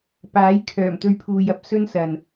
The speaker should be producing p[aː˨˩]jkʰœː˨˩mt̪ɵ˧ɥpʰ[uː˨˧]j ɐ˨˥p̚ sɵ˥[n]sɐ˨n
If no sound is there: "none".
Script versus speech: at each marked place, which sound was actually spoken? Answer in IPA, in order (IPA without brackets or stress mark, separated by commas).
aː˨˥, uː˨, n